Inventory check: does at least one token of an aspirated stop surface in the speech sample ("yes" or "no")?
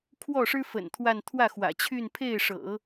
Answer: yes